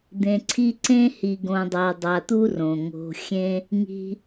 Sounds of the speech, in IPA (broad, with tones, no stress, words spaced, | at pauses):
d̪ẽ˨ǀʰi˥ ǀẽ˥hi˨ɡõ˨dˤa˨ dˤa˨t̪u˥ rõ˩ ŋo̤˨ xʲẽ˥ | ŋi̤˨